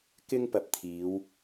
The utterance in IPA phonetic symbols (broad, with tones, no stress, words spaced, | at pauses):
kɪ˥ŋpɐ˧p̚t̪ʰiː˨˧w